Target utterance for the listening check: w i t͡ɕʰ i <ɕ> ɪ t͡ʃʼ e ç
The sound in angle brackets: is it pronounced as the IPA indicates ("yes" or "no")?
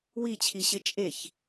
yes